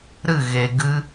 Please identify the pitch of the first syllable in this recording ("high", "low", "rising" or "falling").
falling